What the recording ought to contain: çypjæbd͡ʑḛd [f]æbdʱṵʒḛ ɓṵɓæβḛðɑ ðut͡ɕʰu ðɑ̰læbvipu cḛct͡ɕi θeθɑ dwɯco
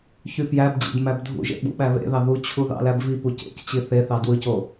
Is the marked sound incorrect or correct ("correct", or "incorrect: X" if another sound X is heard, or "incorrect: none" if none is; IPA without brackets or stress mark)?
incorrect: m